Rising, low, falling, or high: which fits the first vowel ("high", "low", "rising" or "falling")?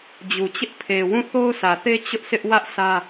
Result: low